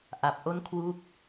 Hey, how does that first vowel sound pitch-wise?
low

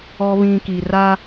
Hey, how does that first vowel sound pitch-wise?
low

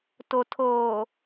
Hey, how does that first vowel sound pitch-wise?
low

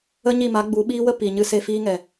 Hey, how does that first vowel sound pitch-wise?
high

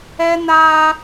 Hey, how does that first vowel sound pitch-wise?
high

